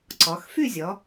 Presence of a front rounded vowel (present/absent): present